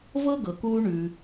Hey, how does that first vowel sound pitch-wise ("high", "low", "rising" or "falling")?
high